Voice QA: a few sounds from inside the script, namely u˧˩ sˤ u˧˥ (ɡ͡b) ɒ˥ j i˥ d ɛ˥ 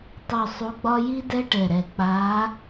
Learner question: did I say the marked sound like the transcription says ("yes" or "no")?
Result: yes